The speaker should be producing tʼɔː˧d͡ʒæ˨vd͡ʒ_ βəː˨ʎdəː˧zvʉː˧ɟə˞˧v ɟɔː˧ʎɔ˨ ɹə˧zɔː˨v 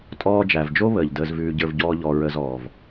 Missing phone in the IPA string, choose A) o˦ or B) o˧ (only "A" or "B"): A